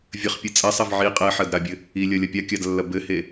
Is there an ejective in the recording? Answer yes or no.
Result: yes